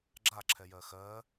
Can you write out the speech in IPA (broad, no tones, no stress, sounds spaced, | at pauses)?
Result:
ɡ͡ǁ a ǁʰ ɛ j ɜ x ɜ